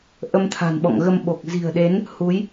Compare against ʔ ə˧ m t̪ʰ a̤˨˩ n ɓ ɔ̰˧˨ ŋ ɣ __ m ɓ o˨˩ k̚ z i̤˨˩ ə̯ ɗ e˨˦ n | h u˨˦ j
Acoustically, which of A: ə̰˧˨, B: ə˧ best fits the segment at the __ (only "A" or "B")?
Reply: B